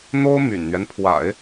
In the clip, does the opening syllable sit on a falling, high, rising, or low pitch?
high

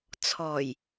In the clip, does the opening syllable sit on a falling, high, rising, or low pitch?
low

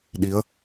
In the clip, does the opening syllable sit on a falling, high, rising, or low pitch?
rising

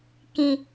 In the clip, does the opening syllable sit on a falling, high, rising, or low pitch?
low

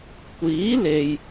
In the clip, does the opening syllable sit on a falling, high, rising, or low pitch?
rising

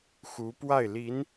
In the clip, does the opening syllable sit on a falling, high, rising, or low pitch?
rising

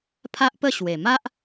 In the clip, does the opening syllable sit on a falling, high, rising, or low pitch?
high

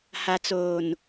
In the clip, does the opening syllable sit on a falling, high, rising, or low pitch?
low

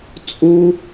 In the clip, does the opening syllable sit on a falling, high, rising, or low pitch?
high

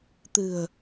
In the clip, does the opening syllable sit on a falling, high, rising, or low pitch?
low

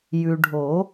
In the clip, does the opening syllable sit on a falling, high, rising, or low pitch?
low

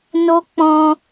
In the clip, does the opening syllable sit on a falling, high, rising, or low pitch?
high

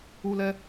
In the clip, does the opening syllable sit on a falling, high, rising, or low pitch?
high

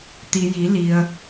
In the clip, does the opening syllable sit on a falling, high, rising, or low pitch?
low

